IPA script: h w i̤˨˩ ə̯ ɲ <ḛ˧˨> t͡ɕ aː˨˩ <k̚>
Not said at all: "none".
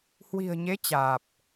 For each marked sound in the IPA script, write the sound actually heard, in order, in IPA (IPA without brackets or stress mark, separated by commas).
e˨˦, p̚